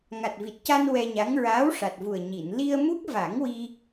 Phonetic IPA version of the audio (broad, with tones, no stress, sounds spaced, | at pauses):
ŋ a˨˩ t̚ v i˨˩ t̚ c a˧ n w ɛ˧ ɲ a˧˥ ŋ ɹ aː˧˥ w ʂ a˨˩ t̚ v u˨˩ ə̯ ɲ i˨˩˨ n l i˧ ə̯ m u˦˥ k̚ v a˨˩˦ ŋ w i˧